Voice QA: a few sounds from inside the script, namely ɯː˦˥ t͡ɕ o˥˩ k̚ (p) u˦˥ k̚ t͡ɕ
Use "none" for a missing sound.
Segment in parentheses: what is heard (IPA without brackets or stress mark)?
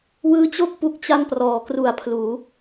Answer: p